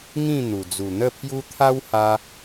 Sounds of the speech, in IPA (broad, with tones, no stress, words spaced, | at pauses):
ŋĩ˥˧n̪u˨˩ d͡zu˨˩n̪ə˥˧pʰju˦ t̪ʰa˦wha˧